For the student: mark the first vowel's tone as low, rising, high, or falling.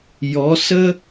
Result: rising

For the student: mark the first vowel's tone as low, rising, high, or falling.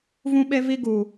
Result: high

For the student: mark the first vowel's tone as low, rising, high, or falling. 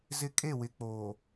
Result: high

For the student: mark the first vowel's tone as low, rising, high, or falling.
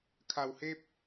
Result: low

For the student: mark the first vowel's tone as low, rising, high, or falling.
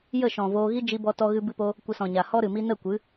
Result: falling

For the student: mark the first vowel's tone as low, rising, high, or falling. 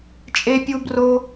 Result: high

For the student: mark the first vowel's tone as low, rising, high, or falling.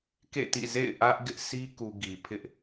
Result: falling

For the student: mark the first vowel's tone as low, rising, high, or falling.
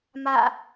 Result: falling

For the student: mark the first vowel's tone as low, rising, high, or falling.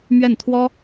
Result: falling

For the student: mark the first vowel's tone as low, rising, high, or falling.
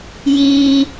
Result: low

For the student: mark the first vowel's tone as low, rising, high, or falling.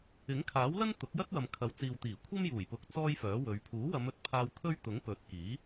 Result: rising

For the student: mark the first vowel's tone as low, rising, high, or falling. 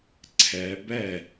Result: rising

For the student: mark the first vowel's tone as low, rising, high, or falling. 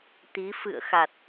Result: rising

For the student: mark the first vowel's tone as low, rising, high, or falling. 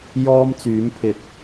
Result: high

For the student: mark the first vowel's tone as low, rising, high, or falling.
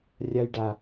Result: high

